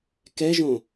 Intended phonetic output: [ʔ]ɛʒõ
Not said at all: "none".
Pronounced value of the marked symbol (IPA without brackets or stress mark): k